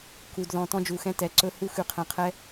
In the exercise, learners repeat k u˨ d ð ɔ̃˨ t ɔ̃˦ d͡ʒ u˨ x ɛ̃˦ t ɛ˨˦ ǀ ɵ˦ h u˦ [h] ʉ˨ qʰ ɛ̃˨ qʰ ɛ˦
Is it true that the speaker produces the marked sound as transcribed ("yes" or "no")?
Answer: no